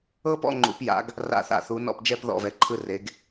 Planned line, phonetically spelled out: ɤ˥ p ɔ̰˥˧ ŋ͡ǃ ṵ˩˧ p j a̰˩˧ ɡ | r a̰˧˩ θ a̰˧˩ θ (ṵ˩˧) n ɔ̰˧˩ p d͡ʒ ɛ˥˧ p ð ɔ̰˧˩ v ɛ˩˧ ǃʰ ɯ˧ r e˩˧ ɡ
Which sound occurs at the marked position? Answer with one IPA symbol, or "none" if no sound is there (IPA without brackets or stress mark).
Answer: u˩˧